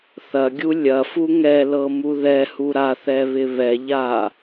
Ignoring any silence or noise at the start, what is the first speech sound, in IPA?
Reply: θ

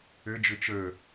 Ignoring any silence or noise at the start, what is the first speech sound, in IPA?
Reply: ɘ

